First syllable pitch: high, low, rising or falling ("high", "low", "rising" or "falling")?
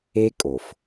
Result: high